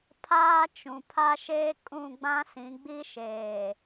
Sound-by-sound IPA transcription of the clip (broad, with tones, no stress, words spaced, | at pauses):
pʰaː˦ t͡ʃũ˨pʰa˦ʃeː˦ kʼũ˦˨ ɡ͡bã˦sĩ˨˦ɡ͡bi˦ʃeː˨